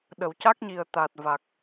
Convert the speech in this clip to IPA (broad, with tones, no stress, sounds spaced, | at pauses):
ɗ ə˨˩˨ w c a˦˥ k̚ ɲ i˨˩ ə̯ t̪ aː˨˩ t̚ v a˨˩ k̚